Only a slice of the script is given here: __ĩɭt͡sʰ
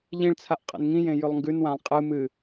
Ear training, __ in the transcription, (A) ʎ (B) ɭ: A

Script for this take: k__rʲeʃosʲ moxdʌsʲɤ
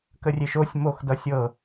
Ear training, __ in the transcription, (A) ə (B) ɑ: A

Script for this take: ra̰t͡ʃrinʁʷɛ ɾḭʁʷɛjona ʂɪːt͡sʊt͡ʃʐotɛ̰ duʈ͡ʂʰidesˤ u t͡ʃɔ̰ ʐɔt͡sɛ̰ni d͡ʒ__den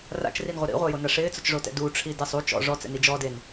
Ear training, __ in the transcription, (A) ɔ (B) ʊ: A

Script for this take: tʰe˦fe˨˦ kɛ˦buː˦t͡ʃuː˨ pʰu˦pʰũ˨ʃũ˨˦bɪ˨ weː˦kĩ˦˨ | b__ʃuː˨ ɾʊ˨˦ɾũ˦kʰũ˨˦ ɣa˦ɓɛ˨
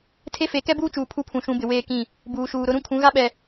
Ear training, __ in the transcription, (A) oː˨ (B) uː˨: B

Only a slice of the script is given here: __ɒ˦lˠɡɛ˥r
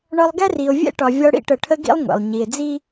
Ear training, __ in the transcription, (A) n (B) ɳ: B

